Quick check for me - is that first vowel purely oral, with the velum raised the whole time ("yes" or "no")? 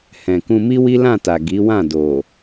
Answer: no